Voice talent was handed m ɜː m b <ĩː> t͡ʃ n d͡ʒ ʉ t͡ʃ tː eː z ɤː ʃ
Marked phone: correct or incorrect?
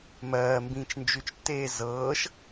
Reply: correct